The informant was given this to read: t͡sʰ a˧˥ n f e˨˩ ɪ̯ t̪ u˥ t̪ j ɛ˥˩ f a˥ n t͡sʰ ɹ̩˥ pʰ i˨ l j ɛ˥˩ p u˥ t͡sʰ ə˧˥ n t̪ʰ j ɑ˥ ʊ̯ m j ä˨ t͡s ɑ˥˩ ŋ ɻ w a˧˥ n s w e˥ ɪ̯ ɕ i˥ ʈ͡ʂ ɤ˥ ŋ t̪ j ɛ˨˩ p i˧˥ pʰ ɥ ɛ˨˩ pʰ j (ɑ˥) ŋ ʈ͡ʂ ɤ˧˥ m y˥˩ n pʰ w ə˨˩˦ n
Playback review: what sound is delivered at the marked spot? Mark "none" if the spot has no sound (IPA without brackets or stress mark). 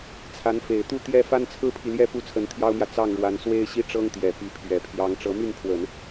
ɑ˧˥